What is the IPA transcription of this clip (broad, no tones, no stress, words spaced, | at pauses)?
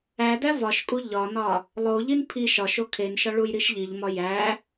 ædæ vɒʃkʼu ʎɒnɒ | lˠoʎin pʰi ʃɒʃo kʰenʃɒ ɭujɾiʃʎiʎmɒ jæ